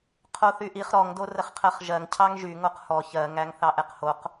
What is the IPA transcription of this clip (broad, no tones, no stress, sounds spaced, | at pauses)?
qʰ o θ y ʔ i χ ɾ ɔ ŋ d o r ə χ qʰ ɜ χ ʒ ɜ ŋ cʰ ɑ ŋ ʒ y ŋ o q h ɔ ç ɜ ŋ æ ŋ θ ɑ ʔ ɛ q h o q